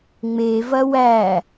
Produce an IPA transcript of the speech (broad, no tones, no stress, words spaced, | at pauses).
ŋ͡mevɐ wæ